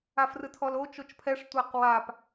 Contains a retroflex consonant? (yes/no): yes